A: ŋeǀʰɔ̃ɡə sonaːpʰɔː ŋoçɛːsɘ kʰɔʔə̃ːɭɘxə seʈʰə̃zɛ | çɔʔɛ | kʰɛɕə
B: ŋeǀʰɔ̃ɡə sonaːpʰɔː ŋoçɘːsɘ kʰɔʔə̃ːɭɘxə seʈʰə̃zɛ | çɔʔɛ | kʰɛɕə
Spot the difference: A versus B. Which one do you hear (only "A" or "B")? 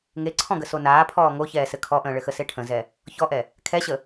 A